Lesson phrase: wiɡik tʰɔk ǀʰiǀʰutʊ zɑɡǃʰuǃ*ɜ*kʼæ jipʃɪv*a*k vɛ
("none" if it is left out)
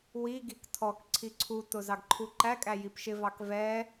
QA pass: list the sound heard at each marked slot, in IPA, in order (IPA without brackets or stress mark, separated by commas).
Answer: æ, ɑ